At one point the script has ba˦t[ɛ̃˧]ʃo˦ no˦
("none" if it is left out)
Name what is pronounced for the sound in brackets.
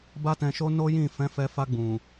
ɛ̃˧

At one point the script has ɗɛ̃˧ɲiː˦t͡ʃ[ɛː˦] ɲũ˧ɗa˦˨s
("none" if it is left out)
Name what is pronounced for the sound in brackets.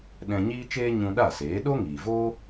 eː˦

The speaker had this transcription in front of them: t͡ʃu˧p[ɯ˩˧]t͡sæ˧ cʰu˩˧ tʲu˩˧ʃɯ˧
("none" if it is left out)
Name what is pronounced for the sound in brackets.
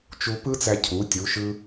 ɯ˥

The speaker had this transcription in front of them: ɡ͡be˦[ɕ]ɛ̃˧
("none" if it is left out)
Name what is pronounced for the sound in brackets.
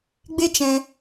t͡ʃ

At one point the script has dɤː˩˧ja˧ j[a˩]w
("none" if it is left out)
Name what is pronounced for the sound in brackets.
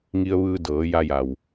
a˩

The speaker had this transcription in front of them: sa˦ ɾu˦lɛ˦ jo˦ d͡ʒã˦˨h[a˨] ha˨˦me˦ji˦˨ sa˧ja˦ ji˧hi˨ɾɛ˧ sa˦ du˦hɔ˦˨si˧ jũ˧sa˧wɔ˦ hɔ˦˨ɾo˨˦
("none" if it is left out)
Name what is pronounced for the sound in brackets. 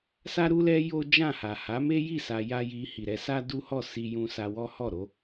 a˨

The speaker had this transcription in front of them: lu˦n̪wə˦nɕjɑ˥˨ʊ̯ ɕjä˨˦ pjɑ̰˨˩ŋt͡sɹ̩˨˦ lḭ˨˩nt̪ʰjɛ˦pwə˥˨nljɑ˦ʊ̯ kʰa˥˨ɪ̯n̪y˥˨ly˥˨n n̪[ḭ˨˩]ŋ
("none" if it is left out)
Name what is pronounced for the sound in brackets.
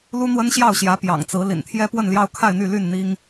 i˦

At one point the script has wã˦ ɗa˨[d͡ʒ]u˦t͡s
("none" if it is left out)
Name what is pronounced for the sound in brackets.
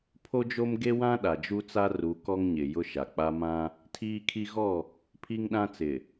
d͡ʒ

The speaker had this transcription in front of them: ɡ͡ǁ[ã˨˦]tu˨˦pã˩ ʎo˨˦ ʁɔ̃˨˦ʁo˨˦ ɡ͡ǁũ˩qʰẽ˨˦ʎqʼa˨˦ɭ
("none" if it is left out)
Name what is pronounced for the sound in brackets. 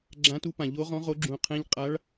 ã˨˦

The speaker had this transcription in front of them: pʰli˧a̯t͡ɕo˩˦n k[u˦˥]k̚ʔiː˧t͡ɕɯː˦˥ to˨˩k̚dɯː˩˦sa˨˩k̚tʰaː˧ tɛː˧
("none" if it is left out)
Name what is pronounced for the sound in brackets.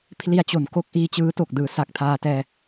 o˦˥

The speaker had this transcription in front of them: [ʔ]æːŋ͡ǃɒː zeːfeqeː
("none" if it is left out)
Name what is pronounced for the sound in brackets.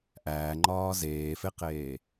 ʔ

